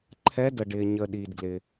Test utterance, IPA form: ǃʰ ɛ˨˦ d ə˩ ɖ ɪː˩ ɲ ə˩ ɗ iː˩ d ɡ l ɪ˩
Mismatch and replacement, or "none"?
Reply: none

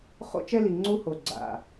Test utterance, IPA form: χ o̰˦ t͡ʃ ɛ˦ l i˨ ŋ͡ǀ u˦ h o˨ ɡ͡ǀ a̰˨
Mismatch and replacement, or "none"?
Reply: none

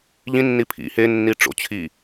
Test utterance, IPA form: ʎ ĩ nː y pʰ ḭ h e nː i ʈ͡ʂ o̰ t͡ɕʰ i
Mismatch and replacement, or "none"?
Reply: y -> i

